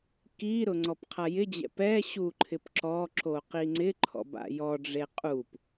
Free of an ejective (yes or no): no